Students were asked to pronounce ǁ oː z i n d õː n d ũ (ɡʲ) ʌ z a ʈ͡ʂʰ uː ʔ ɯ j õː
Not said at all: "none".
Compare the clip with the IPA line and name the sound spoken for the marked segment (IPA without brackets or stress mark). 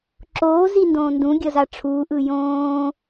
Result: ɡʲ